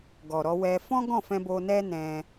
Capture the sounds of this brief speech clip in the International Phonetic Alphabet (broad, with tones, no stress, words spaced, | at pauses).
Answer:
ɡɔ˨ɾɔ˧ wɛ˧ fɔ̃˦ɡɔ̃˦˨fɛ̃˧ bo˧nɛ˦nɛ̃˧